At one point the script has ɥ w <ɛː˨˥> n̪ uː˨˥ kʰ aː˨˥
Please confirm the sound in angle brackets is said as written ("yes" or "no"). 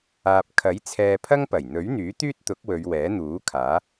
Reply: yes